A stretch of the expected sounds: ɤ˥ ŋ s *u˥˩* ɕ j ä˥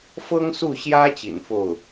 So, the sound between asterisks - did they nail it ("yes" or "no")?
yes